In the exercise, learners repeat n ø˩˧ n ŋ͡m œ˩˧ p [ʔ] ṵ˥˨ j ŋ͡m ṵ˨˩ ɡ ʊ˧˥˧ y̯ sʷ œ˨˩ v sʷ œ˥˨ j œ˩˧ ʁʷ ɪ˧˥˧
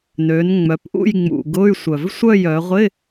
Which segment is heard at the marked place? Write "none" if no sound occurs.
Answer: ʔ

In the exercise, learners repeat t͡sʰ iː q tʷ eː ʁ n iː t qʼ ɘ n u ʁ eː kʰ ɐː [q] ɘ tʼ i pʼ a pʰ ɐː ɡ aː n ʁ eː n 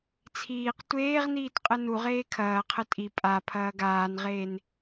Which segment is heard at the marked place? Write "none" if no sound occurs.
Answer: qʰ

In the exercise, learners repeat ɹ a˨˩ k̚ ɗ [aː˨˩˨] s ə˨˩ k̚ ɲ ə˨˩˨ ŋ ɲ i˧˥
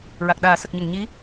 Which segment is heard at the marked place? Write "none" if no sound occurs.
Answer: aː˨˩˦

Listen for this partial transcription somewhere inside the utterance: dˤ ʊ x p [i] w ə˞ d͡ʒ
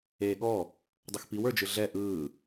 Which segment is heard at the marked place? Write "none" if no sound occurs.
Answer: i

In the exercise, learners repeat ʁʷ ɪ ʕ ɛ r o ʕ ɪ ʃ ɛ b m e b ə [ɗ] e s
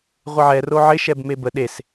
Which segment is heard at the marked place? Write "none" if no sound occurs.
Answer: ɗ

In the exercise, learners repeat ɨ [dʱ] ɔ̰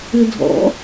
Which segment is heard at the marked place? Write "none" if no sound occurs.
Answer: dʱ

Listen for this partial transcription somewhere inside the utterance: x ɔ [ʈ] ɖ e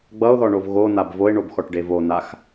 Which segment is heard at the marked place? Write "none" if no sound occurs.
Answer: ʈ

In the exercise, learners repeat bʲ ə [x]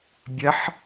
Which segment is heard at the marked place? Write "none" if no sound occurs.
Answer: ħ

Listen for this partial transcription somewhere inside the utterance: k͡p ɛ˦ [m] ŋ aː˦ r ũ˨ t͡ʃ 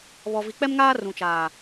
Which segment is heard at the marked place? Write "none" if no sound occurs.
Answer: m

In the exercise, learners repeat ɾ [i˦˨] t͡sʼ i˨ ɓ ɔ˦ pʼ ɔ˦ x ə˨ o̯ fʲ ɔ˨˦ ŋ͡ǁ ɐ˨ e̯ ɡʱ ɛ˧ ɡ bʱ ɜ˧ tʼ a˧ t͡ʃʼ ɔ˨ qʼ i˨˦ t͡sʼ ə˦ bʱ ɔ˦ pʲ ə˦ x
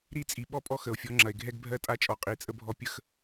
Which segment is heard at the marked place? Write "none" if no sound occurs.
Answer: i˦˨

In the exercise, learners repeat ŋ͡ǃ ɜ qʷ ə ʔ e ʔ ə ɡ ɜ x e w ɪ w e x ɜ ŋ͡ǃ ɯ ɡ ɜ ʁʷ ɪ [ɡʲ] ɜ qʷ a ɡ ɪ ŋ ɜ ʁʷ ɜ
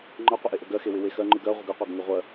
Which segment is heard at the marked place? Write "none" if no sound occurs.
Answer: ɡ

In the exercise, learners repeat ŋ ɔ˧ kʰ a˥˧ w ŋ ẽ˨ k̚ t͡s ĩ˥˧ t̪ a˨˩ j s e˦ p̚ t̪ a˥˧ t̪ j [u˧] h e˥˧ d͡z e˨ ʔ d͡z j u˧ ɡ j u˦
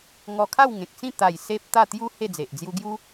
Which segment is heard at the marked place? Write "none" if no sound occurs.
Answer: u˦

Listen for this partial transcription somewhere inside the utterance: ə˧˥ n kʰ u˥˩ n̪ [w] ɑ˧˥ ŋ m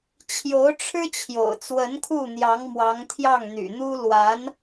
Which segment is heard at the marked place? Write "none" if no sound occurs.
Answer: j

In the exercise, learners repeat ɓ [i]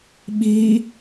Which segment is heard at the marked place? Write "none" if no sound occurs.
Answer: i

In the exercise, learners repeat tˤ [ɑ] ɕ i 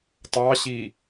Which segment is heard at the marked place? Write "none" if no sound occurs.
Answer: ɑ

